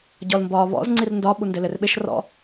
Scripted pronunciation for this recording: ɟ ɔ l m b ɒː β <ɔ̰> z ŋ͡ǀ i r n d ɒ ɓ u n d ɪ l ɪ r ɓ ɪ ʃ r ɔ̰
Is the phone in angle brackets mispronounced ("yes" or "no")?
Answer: no